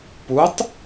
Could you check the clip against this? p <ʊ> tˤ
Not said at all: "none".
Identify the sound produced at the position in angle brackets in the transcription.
u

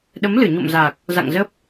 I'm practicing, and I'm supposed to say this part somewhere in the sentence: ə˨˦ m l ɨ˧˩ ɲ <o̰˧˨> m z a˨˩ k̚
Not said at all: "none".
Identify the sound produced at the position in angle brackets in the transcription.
o̰˧˨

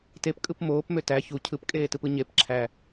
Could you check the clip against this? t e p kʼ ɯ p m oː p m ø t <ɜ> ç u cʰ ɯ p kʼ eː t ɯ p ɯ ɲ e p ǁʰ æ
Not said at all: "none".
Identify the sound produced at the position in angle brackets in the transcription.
æ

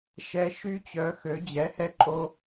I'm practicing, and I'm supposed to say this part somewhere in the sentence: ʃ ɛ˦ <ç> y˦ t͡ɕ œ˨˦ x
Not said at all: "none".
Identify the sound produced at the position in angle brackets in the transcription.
ʃ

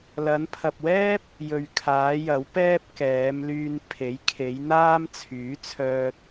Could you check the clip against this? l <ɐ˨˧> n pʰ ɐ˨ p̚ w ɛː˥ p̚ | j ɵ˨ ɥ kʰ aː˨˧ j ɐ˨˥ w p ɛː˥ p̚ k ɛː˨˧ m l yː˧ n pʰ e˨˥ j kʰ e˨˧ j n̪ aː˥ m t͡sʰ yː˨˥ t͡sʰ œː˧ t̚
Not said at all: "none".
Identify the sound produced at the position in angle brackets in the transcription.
ɐ˨˧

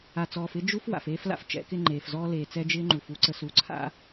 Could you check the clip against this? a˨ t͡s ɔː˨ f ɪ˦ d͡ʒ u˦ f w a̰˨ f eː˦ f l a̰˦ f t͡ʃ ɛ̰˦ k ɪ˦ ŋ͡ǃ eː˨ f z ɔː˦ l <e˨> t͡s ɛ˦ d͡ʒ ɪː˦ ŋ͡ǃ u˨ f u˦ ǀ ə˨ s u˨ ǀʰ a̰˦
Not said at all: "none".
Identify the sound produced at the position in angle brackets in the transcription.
eː˨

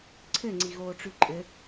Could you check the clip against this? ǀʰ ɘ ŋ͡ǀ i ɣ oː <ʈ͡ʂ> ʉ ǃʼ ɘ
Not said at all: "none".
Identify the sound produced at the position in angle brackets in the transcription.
ʈ͡ʂ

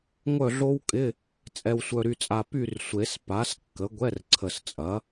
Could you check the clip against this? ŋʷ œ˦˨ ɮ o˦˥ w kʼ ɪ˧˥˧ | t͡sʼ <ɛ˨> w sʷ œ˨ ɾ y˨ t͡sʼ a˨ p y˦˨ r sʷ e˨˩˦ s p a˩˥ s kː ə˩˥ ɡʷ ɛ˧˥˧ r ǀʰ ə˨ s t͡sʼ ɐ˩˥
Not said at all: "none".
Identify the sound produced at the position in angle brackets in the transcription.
ɛ˨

